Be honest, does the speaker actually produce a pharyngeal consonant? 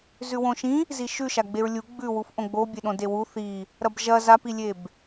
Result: no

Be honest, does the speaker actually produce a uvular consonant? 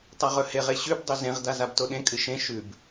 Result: yes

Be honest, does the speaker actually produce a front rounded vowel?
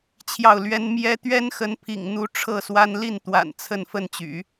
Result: yes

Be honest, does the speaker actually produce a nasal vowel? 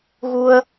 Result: no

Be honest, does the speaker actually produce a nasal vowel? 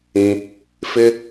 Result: yes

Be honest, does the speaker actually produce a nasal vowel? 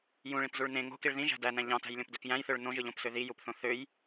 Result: yes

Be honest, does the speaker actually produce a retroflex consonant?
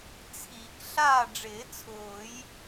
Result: yes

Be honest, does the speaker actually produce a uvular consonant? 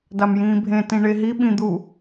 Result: no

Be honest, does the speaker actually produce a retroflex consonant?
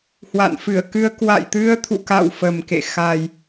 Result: no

